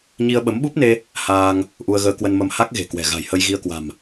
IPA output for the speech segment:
ɲ i˧ ə̯ ɓ ə˨˦ m ɓ u˦˥ p̚ n e˧ | h aː˧ ŋ | ʔ u˧ ə̯ ɣ əː˧ k w ə˧ n m ə˧ m h a˦˥ k̚ ɣ e̤˨˩ k w ɛ̤˨˩ ɣ a̤˨˩ j h ə˧ j ɣ i˧ ə̯ k w a̤˨˩ m

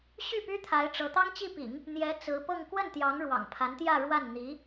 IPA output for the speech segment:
ɕ y˥˩ p y˥ t̪ʰ a˧˥ ɪ̯ ʈ͡ʂ ɤ˧˥ t̪ ɑ˥ ŋ t͡ɕ i˥˩ p ḭ˨˩˦ ŋ | n̪ j ɛ˧˥ t͡s ɹ̩˧˥ p ɤ˥˧ ŋ k w ə˥˩ n t̪ j ɑ˧˥ ŋ ɻ w ɑ̰˨˩ ŋ pʰ a˧˥ n t̪ j ä˥˧ ɻ w a˥˩ n n̪ i˧˥

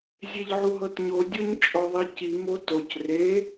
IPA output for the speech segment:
zʲ e ʎ ʕ u ɦ ɤ t ɲ o dʲ o ɲ t͡ʃʼ ɔ ðˤ i c i m o t o c r e

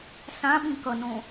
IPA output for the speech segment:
s ã ɓ ĩ k ʌ n õ

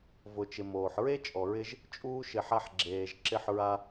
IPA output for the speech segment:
v ʊ˨ t͡ʃ ɪ˨ m oː˨ ħ ɹ e˦ t͡ʃʼ ɔ˨ ɹ ɪ˧ ʒ | t͡ʃʼ uː˦ ʃ ɪ˧ ħ a˧ ħ ɡ͡ǁ eː˨ ʒ ǁ ɪ˧ ħ ɹ a˧

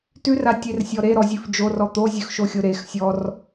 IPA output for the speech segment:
t ʉ r a tʲ e r sʲ ɔ ɾ e ɾ ɔ zʲ ʉ f d͡ʒ o r ɔ t̪ o zʲ ʉ x ʃ o xʲ o ɾ e x sʲ ɔ r

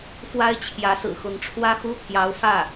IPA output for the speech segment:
f w a˥ ɪ̯ t͡ɕʰ j ä˧˥ s ɹ̩˨˩ x ʊ˧˥ ŋ ʈ͡ʂʰ w ä˥ x u˥ t̪ʰ j ɑ˧˥ ʊ̯ f ä˥˩

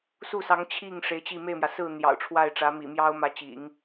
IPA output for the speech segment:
s u˥˩ s ɑ˧˥ ŋ t͡ɕʰ i˥˩ ŋ ʂ e˧˥ ɪ̯ t͡ɕ i˥˧ m e˥˩ ɪ̯ m j ä˩ s ɹ̩˥˩ n̪ j ɑ̰˨˩ ʊ̯ ʈ͡ʂʰ w a˥˩ ɪ̯ ʈ͡ʂ ä˧˥ m ḭ˨˩ m j ɑ˥ ʊ̯ m ä˧˥ t͡ɕ ḭ˨˩˦ ŋ

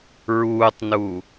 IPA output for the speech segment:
ɹ uː tˤ n u

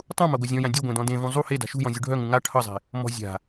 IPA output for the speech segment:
tˤ ũ m a ɡʷ œ zʲ ɔ̃ j ã dʲ u ɡʷ ẽ d ɔ̃ d ẽ v ũ zˤ u h e d a̤ ʃ ṳ j ɔ̃ zʲ u ɖʱ œ ŋ ũ ŋ a ʈʰ ʌ zˤ e̤ | m ɔ̤ zʲ a̤

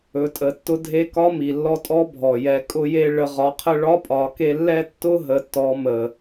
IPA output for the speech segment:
ɵ˩˧ tʼ ə˩˧ tː ʊ˧ dʱ e˧ k ɒ˧˥ m i˩ lː ɔ˧ tʼ ɔ˧˥ bʱ ɔ˩ j ɛ˩˧ kʼ ʊ˧ j e˧ ɭ ə˩˧ ʁ ɒ˩˧ qʰ ə˧ ɭ ɒ˧˥ pʼ ɒ˩˧ k e˧ lː ɛ˥ tː ʊ˥ ɦ ə˩˧ tː ɔ˩˧ m ə˩

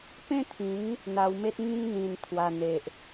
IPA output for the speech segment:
p ẽ˦ t̪ʰ ĩ˨˦ ŋ | n̪ a˧ w m e˦ t̚ ŋ ĩ˧ ŋ n̪ ĩ˨˩ n t̪ʰ w a˨˩ n̪ e˨ ʔ

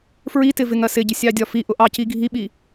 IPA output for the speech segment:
f ɹ i t ɪ v ɪ ŋ ɜ s ɪ ɟ ɪ sʲ ɑ dʲ ɒ f i ʔ ʊ ʔ ɑ c i ɡʱ i ɓ i

